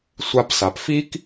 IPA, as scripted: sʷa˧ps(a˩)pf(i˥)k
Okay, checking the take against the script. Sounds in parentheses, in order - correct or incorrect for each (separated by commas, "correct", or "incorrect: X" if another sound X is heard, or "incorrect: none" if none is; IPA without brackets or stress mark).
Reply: correct, correct